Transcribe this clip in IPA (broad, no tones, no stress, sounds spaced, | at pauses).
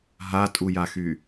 ɦ a tʼ u j a x y